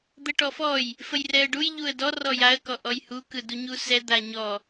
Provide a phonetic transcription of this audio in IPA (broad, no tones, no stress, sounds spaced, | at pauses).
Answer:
d̪ ə ʈ ɔ f ɔ j | f ə j r ɛ ə̯ ɖ u j ʎ u ə̯ d ɔ r ɔ j a ə̯ k ɔ ʔ ɔ j h u k ɯ d u ɲ u s ɛ d̪ a ɲ ɔ